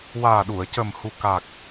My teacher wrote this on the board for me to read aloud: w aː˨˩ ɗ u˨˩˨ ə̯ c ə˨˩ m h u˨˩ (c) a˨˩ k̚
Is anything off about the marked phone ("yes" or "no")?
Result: yes